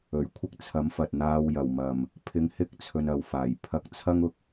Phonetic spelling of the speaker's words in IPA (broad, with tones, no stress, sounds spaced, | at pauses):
ɵ˨˩ ɥ kʷʰ ɪ˥ k̚ t͡sʰ ɐ˨˥ m f ɐ˨ t̚ n̪ aː˧ w j ɐ˨˩ w m ɐ˨˩ m | pʰ ɪ˧ ŋ h ɪ˥ k̚ t͡sʰ ɵ˧ n ɐ˨˧ w f aː˨˩ j pʰ ɐ˧ k̚ t͡sʰ ɐ˥ ŋ ʊ˨ k̚